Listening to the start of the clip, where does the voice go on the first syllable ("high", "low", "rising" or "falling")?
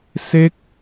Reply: falling